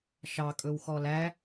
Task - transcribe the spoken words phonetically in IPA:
ʃ ɑ kʼ ɵ w x ɔ l æ

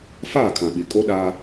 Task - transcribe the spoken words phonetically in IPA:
f aː˦˨ kʰ ã˨ ɓ i˨ kʼ o˦ ɗ aː˦

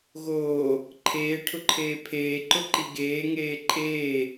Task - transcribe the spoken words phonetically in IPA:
ɣ oː | ǃʰ eː ʈʰ ʊ ǃʰ eː pʰ eː ǃ ʊ ǃ i ɡ eː ŋ eː ǃʼ eː

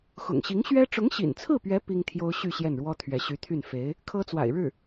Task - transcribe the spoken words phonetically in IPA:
x ʊ̰˨˩ ŋ ɕ i˧˥ ŋ ɕ ɥ ɛ˥ ʈ͡ʂ ʊ˧˥ ŋ ɕ ḭ˨˩ n t͡sʰ ɹ̩˥˩ p ɥ ɛ˧˥ p i˥ ŋ t̪ʰ j o˥ ʊ̯ ɕ y˥˧ ɕ j ɛ˥˩ n ɻ w ɔ˥ t̪ʰ ɥ ɛ˧˥ ɕ y˧˥ t̪ʰ y˥˩ n f e˧˥ ɪ̯ | kʰ ɤ˥ t͡s w a̰˨˩ ɪ̯ ɻ ɻ̩˥˩

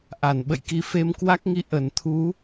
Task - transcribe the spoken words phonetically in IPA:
ʔ a˧˩ n ɓ ə̰˧˨ j k i˧ f e˧ m k w a˦˥ k̚ ŋ i˧ ʔ ə˧˩ n t̪ʰ u˨˦

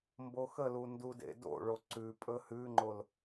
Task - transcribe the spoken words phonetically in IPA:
m b o x ə l u n d u d ḛ d o̰ ɭ o ǀ ʉ pʼ ɵ h ʉ ŋ͡ǃ o l

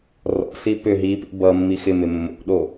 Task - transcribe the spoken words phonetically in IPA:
r ɔ̰ s i p ʏ ɦ i p ḭ b ʌ mː i x ɪ m ɪ mː o̰ ɗ o

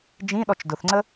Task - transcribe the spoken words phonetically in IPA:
d͡ʒ ĩ ɗ ɔ t͡ʃ d ʊ θ ŋ͡ǀ ə

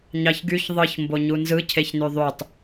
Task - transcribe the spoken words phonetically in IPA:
ɲ ɑ ç ɡ y ç ðˤ ɯ ç m b o ɲ u n z ɯ cʰ e ç n y ðˤ y tˤ

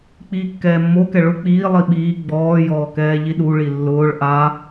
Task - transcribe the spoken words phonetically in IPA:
k͡p iː kː ɛː mː o k ɛ ɭ ʊ k͡p iː lˠ i ɓ iː ɡ͡b ɔː j ɔː k ɛː ʎ i ɗ u ɭ i lː ʊː ɭ ʔ a

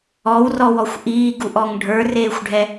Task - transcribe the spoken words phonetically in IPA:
ɔ w r ɔ w ɔ xʷ ʔ iː ɡ u ʔ ɔ ŋ ɖʱ ə˞ r eː xʷ ɖʱ ɛ

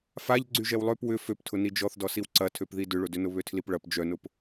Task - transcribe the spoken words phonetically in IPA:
f a ʎ ɡ͡ǀ y ʒ ɛ w lˠ ø p w ʏ f ø p tʰ ʊ n i d͡ʒ ɔ θ d ɔ s i w ǀ ɐ tʰ ø p ð i d ʏ ɭ ʊ d ʏ n ʊ β ø tʰ l i p ɭ ɐ p d͡ʒ œ n ʊ p

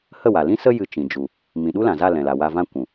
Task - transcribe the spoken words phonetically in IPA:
h ə˦˨ w a˨ l ĩ˦ s ə˦ j ɨ˧ t͡ʃ ĩ˨ d͡ʒ u˨ | m ĩ˨ ɗ u˦ l ã˨ z a˦˨ l ɛ̃˨ l a˨ w a˧ v ã˧ kʷ ũ˨

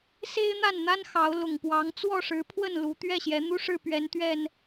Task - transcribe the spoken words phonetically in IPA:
s e˦ ɪ̯ n̪ a˥˨ n n̪ a˦ n x ɑ˨˦ ʊ̯ l ʊ˨˩ ŋ p w ɑ˨˦ ŋ t͡s w ɔ˥˨ ʂ ɻ̩˨˦ pʰ w ə˥˨ n l u˨˦ t̪ ɥ ɛ˥˨ ɕ j ɛ˨˦ n̪ u˦ ʂ ɻ̩˥˨ p ɥ ɛ˨˦ n t̪ ɥ ɛ˨˩ n

